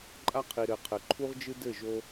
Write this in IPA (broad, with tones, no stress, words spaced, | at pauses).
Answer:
ǃʼa˦qʰi˨ɾɘ˨qʰɘ˨ ǃʰu˦ʁd͡ʒɨ˦dɘ˦˨ʒo˦